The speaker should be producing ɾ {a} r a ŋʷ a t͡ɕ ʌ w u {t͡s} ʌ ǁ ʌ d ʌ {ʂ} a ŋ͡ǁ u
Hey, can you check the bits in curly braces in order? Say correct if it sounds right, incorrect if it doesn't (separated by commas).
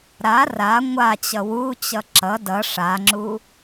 correct, incorrect, correct